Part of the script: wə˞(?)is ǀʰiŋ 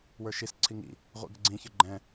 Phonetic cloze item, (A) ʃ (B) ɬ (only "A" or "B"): A